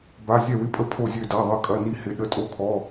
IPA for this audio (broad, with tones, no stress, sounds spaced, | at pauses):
b a˧˥˧ zʲ ɛ˥˨ w ɪ˧˥˧ pʼ ə˧˥˧ pʰ o˥˨ zʲ ø˥˨ d a˧˥˧ ðˤ ə˥˨ kʼ ɐ˧˥˧ n i˥˨ h ɪ˧˥˧ ɗ ə˧˥˧ tʼ o˥˨ kʰ ɔ˧˥˧